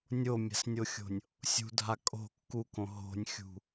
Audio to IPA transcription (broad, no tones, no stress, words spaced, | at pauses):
nʲomʲa̤snʲoxʲo̤nʲ | sʲṳdʱa kʼo̤ kːukõ ɦo̤nʲxʲṳ